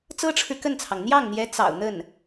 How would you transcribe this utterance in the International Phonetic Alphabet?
t͡s ɤ˥ ʈ͡ʂʰ ɻ̩˨ k ə˥˩ n t͡sʰ ɑ˩ ŋ n̪ j ɑ˥˩ ŋ n̪ j ɛ˧˥ t͡s ɑ̰˨˩ ʊ̯ n̪ ə˥˩ n

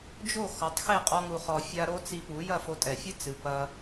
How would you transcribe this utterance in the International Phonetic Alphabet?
d͡ʒ o˥˩ x ɔ˩˥ tˤ x e˥˩ qʼ ɔ˥ ŋ u˧ χ ɔ˧ fʲ a˥ ɾ o˥ t͡s i˧ p u˩˥ j ɐ˥˩ f o˧ tʼ ɛ˩ fʲ ɨ˥ t͡s ɨ˩ p ɐ˧

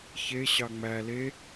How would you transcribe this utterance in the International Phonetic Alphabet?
ç e ɕ ɑ ŋ͡m æ l e

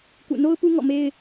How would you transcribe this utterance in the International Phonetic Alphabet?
k ṵ˦˨ n o˦ ʊ̯ p u˦ ŋ ɔ̰˦˨ m e˦ ɪ̯

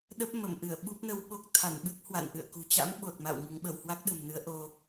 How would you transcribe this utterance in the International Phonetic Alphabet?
ɗ ə˦˥ p̚ m ə˧˩ m ʔ ɨ˧˩ ə̯ ɓ u˦˥ p̚ n ə˧ w ɓ o˦˥ k̚ t̪ʰ a˧˩ n ɓ ɨ˦˥ k̚ h w a̰˧˨ n ʔ ɨ̰˧˨ ə̯ k ṳ˨˩ t͡ɕ a̰˧˥ m ɓ o˨˩ t̚ m a̰˧˨ w ŋ ɨ˨˦ ŋ ɓ ə˧˩ w h w a˦˥ k̚ ɗ ə̤˨˩ m n ɨ˨˦ ə̯ ʔ o˧

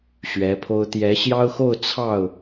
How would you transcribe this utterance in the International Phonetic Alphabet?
ɕ ɥ ɛ˧˥ pʰ o˥ ʊ̯ t̪ j ɛ˧˥ ɕ j ɑ˥ ʊ̯ x o˥˧ ʊ̯ t͡sʰ ɑ˥˩ ʊ̯

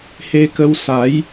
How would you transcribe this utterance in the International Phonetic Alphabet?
h e˧ k ə˧ w s a˨˦ j

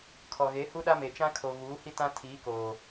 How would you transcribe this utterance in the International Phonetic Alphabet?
kʰ ɔ˨ ɣ e˨˦ h u˦ ɗ a˦ m e˨ t͡ʃ ã˦ kʰ o˨ ɣ uː˨˦ h i˦ t ã˦ tʰ iː˨˦ k oː˨

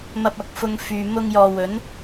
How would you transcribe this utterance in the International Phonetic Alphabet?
m ɐ˧ p̚ ɐ˨˥ k̚ f ʊ˧ ŋ f yː˨ m ʊ˧ ŋ j ɔː˨ w ɵ˨˥ n

